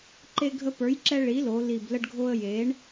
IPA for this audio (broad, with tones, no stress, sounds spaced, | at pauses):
ǃ e˧ ɡʱ ə˧ p ə˞˩˥ j ǁ ɛ˧ ɭ i˩˥ l o˩˧ l i˨˩ b l ə˧ ɖ ɡʱ o˧ ə̯ j e˩˥ ɳ